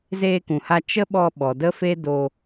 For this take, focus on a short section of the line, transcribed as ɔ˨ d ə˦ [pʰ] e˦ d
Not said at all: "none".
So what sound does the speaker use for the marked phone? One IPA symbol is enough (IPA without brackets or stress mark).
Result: f